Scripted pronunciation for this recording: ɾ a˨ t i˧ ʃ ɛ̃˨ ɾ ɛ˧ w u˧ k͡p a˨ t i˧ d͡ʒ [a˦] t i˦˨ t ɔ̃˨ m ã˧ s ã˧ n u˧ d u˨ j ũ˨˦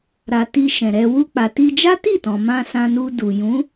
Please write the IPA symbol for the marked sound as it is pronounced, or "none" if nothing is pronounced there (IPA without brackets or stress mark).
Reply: a˦